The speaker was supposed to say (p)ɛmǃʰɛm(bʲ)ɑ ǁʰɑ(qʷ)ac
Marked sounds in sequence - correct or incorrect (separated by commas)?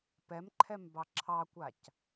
correct, incorrect, incorrect